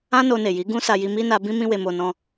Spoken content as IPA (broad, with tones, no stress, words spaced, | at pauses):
ã˦ no˧ne˨ji˨˦ ɡũ˦sa˧ji˧ mi˦na˧bĩ˦ mĩ˦we˧mo˧ nɔ̃˧